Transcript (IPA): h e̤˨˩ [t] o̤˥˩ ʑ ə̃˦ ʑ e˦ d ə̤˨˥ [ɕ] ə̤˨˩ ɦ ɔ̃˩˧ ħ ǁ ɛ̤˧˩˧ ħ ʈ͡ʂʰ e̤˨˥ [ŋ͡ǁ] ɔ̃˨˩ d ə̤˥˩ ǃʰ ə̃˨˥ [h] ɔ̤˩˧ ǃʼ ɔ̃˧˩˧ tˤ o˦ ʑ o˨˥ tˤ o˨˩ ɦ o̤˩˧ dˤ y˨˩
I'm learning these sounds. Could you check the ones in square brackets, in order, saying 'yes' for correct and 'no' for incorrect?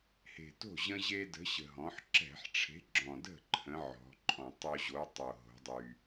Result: yes, yes, no, no

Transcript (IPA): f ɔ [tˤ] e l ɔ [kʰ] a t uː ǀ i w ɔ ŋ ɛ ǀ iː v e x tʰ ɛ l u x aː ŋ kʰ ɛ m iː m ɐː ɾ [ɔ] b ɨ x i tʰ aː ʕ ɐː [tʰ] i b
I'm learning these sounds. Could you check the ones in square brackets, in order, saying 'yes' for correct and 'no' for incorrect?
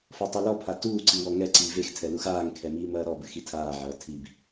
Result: yes, no, yes, yes

